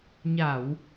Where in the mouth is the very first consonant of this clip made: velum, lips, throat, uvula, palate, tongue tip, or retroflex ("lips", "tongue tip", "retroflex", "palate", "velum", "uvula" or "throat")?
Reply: palate